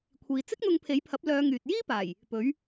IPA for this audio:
kʷʰ iː˨ t͡s ɪ˥ k̚ n̪ ʊ˧ ŋ pʰ e˨˥ j pʰ ɐ˨˥ p̚ l œː˨˧ ŋ yː˨ t̚ j iː˥ p aː˨˩ j | p ɵ˨˥ ɥ

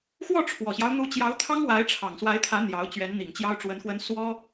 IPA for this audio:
x w ɔ˥˩ ʈ͡ʂʰ w ɔ˨˩ ɕ j ɑ˦ ʊ̯ n̪ u˧˥ t͡ɕ j ɑ˧˥ ʊ̯ t̪ʰ ɑ˥ ŋ w a˧˥ ɪ̯ ʈ͡ʂʰ ɑ˨˩ ŋ s w a˧˥ ɪ̯ t̪ʰ ä˧˥ n̪ j ɑ˧˥ ʊ̯ t͡ɕ ɥ ɛ˧˥ n n̪ i˨˩ ŋ t͡ɕ j ɑ˥ ʊ̯ ʈ͡ʂ w ə˧˥ n x w ə˥ n s w ɔ˥

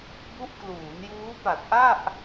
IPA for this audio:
b u˦˥ ʔ k l uː˩˦ n j uː˦˥ p a˨˩ t̚ ʔ a˥˩ ʔ

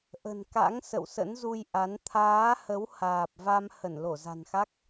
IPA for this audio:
ʔ ə̤˨˩ n k a̰˧˥ ŋ s ə̰˧˨ w s ə̰˧˥ n z u˧ j ʔ a˨˦ n t̪ʰ aː˨˦ h ə˨˦ w h aː˨˩ p̚ v a˧ m h ə˧˩ n l o˧˩ z a̤˨˩ n x a˦˥ k̚

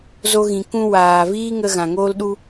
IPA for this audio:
z o˧ ɣ ĩ˨ k ũ˧ w aː˨ v iː˦ ŋ ə˧ ɣ ã˨ ŋ oː˦ l ɗ u˦

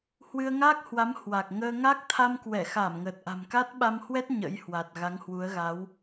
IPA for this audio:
h w ɨ˧ ə̯ ŋ aː˦˥ k̚ h w a˨˦ m h w a˨˩ k̚ ŋ əː˧ ŋ a˦˥ k̚ t̪ʰ a˧ m k w ɛ˧˩ x aː˧˩ m ŋ əː˨˩ t̚ ʔ a̤˨˩ m k a˦˥ t̚ ɓ a˧ m h w ɛ˦˥ t̚ ɲ ə̰˧˥ j h w a˨˩ t̚ ɣ a˨˦ ŋ h w u˨˦ ə̯ ɣ a˨˦ w

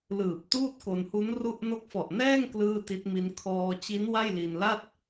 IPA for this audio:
l ɯː˨˩ p̚ t uː˥˩ t̚ k o˧ n h u˦˥ n r u˥˩ ʔ n o˦˥ k̚ f ɔ˨˩ ʔ n ɛː˥˩ ŋ k l ɯː˥˩ t i˦˥ t̚ m i˦˥ n kʰ ɔː˧ t͡ɕ i˦˥ n w a˥˩ j l i˧ n l a˥˩ t̚

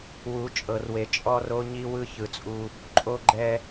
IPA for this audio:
w u˨˦ t͡ʃʼ ɤ˨ r w e˨ t͡ʃʼ ɔ˦ r o˦ ɲ i˦ w ɯ˦ ç ɯ˨ t͡sʼ u˦ | ǃʼ o˦ ɡ͡ǃ ɛ˦

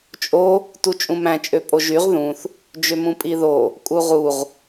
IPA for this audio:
t͡ʃʼ o | t u t͡ʃʼ ũ m æ̃ t͡ʃʼ ø pʼ o ʒ y ʁ ð ũ θ | d͡ʒ ø m ũ pʼ i ð o | kʼ u ʁ u ʁ

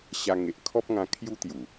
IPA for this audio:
ɕ a˧ ŋ e˨ ʔ kʰ ɔ˦ p̚ ŋ ã˧ kʰ j u˦ t̪ j u˨˩

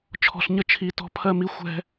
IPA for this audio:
t͡ʃʰ ɔ̤˧ ɬ ɲ ə˥ t͡ʃʰ i˧ t ɔ̤˥ pʰ ɜ˥ m i˥ xʷ ɛ̤˥

